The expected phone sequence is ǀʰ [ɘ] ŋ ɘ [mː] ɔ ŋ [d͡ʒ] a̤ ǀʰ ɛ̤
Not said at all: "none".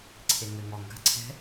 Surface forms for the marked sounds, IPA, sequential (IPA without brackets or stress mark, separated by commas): e, ŋ, ɡ